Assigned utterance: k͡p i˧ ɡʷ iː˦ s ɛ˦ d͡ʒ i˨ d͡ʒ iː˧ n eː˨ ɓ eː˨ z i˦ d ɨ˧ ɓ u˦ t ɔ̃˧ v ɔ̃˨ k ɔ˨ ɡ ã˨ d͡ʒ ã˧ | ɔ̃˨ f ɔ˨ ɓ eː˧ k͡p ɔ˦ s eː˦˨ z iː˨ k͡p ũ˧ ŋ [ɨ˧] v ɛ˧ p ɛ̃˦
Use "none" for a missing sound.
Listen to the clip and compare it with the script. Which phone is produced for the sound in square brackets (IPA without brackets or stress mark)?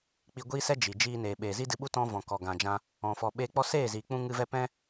ɨ˧